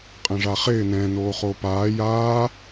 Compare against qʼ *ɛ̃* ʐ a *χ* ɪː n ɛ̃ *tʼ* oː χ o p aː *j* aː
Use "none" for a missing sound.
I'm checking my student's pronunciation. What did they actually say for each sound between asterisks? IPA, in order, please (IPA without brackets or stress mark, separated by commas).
ɛ̃, χ, n, j